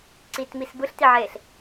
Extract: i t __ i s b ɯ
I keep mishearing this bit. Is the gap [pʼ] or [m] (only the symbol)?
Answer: m